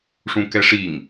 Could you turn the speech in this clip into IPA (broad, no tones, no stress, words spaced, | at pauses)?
ʂũkɛʂiŋ